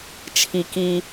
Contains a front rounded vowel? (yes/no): no